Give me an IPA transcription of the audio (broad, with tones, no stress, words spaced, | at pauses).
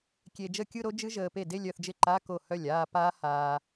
kʲe˧ d͡ʒə˥˩kʲɯ˥˧ɾo˦˥d͡ʒɨ˦˥ ʒəː˧pe˥˩ de˥˧lʲœ˥˩θd͡ʒɪ˥˩ ǃa˧˥˧ ko˥˩hœ˥˩lʲaː˥˧ paː˦˥haː˧